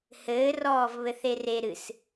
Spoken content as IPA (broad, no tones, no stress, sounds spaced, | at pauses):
h ɘː r ɔː v β ɘ θ e r e ɾ ɨ s